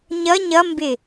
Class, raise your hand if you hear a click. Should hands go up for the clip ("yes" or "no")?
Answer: no